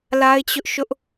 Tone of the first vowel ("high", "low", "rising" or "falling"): high